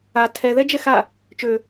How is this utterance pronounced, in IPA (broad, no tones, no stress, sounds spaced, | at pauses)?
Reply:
a tʰ ɛ ð ɛ d͡ʒ ɛ x a | t͡ʃ ø